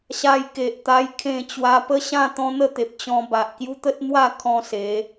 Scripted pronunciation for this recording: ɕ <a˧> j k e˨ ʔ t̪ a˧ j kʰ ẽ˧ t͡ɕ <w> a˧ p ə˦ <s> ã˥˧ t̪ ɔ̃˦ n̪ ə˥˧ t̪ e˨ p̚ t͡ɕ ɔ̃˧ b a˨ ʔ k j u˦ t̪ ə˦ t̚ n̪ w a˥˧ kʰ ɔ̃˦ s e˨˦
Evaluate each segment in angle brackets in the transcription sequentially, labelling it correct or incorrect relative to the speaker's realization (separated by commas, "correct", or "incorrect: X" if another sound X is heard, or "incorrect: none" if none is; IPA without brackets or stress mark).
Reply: correct, correct, incorrect: ɕ